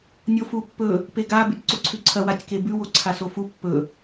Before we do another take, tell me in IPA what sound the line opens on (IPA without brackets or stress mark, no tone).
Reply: nʲ